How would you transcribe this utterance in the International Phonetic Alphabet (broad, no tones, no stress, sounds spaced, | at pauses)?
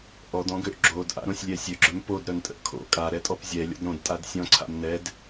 ʔ ɔ d ɔ̃ ɡ ø ʔ ɡ͡ǁ o d ʔ a̰ ɾ õ sʲ lʲ ɛ sʲ ø ɡ͡ǁ œ m p o d ɾ œ n tʼ ə̰ ʔ kʰ o̰ kʼ a ɾ ɛ tʼ ɔ p zʲ ɛ lʲ ɔ̰ d ɾ õ d tʼ a d sʲ ɔ̃ ǀʰ a̰ m n ɛ d